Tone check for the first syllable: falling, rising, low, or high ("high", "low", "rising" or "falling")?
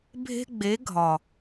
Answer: high